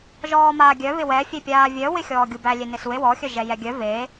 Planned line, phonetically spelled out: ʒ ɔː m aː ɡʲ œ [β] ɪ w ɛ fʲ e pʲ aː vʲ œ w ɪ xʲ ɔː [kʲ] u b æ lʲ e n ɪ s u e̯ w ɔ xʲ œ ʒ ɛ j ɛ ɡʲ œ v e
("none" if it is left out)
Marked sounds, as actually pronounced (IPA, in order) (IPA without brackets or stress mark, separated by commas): β, ɡʲ